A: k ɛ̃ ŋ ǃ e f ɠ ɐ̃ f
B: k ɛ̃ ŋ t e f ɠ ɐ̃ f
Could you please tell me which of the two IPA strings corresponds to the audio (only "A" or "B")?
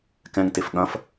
B